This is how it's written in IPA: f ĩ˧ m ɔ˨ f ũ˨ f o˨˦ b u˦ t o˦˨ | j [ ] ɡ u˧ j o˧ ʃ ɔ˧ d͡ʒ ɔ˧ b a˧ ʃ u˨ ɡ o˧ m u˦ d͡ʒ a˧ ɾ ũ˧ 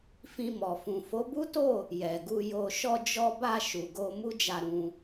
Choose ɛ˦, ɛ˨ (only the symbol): ɛ˨